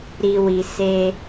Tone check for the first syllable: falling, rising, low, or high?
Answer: low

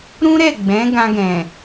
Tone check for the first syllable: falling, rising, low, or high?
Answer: high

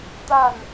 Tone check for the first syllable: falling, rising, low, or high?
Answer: falling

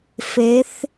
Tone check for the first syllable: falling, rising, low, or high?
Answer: rising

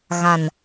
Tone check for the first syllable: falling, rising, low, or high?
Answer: low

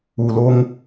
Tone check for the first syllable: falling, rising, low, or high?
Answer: low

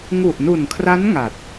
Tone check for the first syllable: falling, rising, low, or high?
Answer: low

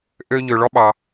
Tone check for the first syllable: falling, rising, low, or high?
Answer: high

